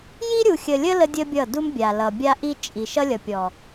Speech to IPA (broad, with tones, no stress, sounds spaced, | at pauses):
j i˦ ɾʲ u˨ xʲ ə˨ lʲ ə˦ l ə˦ dʲ ə˦ bʲ ʌ˦˨ d u˦ m bʲ a˨ l ʌ˨ bʲ a˦ ʔ i˦ t͡ʃʼ i˨ ʃ ʌ˦ lʲ ʌ˨ pʲ ɔ˨